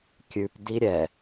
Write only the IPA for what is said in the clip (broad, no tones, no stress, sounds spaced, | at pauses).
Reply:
kʲ ʉ p d i ɾʲ ɛ